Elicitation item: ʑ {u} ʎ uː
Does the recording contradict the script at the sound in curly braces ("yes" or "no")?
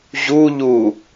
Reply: no